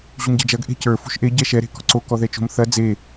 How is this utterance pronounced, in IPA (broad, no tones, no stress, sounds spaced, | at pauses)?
ʑ u m ɟ ɛ̤ d͡ʒ ɐ ɡ ʔ e̤ c ə˞ f ṳ ʃ ʔ e ɟ ɛ ʃ ɛ ɾ e̤ k ɔ̤ ǀ o k ɔ ð ɛ t͡ʃ o̤ m θ ɐ d͡z e